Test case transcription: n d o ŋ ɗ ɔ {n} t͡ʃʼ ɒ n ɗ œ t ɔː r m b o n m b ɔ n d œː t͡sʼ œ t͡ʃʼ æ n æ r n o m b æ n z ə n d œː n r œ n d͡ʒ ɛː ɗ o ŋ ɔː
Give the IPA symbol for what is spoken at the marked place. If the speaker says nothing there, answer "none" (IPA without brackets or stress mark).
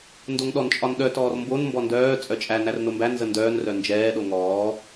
n